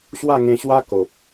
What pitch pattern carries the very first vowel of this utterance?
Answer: falling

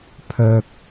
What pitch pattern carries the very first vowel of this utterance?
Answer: low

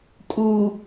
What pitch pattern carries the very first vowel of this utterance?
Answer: low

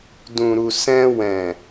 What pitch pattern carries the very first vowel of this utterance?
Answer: low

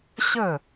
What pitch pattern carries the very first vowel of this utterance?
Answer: falling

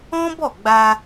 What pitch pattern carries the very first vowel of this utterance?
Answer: high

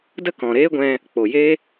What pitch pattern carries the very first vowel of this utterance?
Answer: high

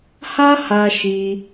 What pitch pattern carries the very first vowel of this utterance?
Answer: high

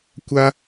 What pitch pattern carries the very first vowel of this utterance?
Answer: high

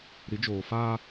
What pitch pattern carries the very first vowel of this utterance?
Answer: rising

